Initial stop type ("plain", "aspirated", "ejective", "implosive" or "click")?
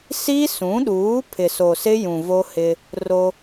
implosive